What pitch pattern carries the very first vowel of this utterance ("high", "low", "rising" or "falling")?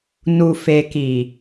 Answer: low